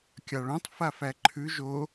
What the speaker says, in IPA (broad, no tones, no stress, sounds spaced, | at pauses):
kʲ ɑ ɭ õ tˤ f a f æ ǃʰ ʉ ʒ o